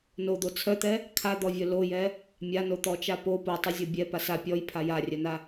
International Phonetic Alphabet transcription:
nod̪o t͡sʰœt̪ɛ | kʰad̪ɔvʲœ lojɛ | mʲanot̪ɔt͡ʃa po potˤizʲɔ bʲɛpas a pʲɔjpʰa jarʲœna

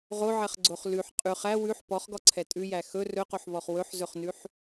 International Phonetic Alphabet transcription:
ʁoʕɛχɡ͡ǀoχ lʉħ qʼʉχ æ wʉħ pɔχɡɔǀʰɛ tʼʉjæ xɵ rɵqoħβɔχ wɵħzɵχnʉħ

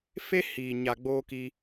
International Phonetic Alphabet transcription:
fe˦hiː˨ ɲa˨ ɡ͡boː˦ki˧

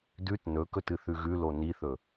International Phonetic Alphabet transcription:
dʉt nɵkɵtɨ θʉɣʉlo niθɵ

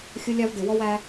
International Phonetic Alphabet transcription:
xʲʊ˦lʲɑ˦v dɪ˨ wɔ˦wæ˦

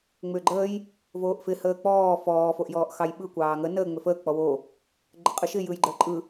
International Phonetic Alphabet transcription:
ŋ͡mʏːɡ͡ǃəːj | voːʔfɪ həːk͡pɔː fɔː foʔjɔːʔxɑjɓɯ kʷɑːŋə nəː ŋ͡mʏfəː k͡pɔwo | ɡ͡ǃəqʼɯʃɪ jɯjɡ͡ǃəːǃʼɯ

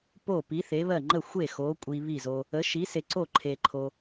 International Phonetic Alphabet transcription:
po˥˩pi˨˥θe˨˥βɜ˥˩ ŋ͡ǃə˥˩xʷe˥˩ xo˨˥kʷʼi˧ βi˥˩zo˧ | ə˨˥ʃi˨˥se˧ ǀo˥˩ ǃʰe˧ǃʰo˧

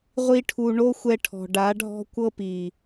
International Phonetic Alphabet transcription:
ʁʷi˦ʈʰu˧ ɳo˦xʷɛ˧ʈʰɔ̤˨ ɖa˨˦ɖʱɔ̤˦ kʷɤ˦pi˨

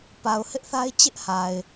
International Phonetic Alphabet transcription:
pa˨ʊ̯hɪ˦ʔ θa˦ɪ̯t͡ɕɪ˦ʔha˨ɪ̯

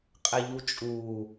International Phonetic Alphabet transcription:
qʼɛʎut͡ʃʼuː

